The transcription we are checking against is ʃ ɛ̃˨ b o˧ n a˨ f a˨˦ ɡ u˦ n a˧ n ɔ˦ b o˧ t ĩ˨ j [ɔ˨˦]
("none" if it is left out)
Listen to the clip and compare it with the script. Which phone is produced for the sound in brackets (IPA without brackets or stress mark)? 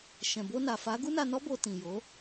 o˨˦